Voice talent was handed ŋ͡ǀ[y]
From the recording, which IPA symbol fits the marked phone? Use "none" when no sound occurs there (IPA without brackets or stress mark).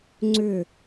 ʏ